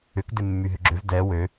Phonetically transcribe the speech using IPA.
ʏ k d ɪ mː y ɦ ʏ ɡ͡ǁ ʏ v d ɛ w ø

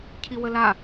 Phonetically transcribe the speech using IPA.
cʰ i w ə l a

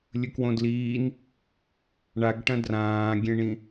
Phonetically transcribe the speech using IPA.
lʲ ɵ k w õ d l iː n | ɳ a ɡ ʈ ɐ̃ d r ãː ɡʲ ẽ ɳ ĩ

